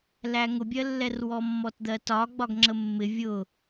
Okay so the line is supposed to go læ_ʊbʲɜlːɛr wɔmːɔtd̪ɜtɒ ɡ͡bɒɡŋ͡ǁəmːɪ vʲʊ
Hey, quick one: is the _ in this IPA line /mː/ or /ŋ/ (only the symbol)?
ŋ